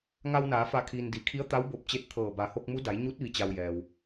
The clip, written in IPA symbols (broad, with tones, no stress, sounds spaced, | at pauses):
ŋ a˧ w n aː˩˧ f a˧˩ kʰ iː˩ n d i˩ kʰ i˧˥ ə̯ t̪ a˧˥ w b o˧˩ p̚ t͡ɕ e˧ t̚ t̪ʰ ɤː˧˩ b a˩˧ h o˧ k̚ m u˧˥ d a˩˧ j ɲ u˧˥ t̚ ʋ i˩ t͡ɕ a˩ w j ɛː˩ w